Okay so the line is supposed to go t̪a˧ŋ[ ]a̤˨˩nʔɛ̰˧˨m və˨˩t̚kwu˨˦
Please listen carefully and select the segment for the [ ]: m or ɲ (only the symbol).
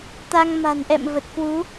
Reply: m